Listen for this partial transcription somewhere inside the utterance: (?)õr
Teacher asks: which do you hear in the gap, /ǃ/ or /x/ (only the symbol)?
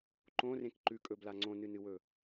ǃ